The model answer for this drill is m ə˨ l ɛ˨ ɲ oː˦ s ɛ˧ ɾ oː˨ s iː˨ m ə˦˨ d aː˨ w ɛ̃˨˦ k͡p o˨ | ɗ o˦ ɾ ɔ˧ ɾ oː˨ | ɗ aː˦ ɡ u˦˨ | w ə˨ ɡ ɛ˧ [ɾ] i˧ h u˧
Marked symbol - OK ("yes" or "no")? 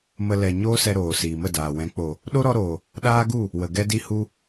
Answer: no